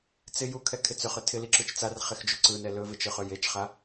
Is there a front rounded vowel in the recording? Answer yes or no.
yes